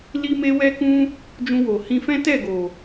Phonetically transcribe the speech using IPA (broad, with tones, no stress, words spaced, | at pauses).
li˧me˧wɛ˧kũ˧ | d͡ʒũ˧wo˨hĩ˧fɛ̃˦ tɛ˦˨ɡo˨